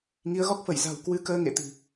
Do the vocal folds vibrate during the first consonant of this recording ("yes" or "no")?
yes